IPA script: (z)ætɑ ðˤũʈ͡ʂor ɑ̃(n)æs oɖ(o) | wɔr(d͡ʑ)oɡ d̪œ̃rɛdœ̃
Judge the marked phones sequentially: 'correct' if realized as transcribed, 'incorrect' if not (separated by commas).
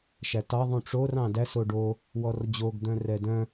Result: incorrect, incorrect, correct, correct